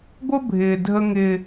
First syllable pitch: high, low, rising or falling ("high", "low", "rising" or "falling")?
high